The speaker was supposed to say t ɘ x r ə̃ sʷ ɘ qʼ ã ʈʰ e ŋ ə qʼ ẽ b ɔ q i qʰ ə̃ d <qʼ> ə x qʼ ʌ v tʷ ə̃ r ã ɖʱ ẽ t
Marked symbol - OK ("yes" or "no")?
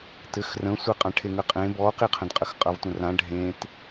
yes